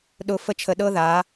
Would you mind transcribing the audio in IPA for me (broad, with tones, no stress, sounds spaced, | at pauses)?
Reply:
ɗ ʊ˧ f ə˦ t͡ʃʰ ə˧ ɗ ɤ˦ ð a˨˦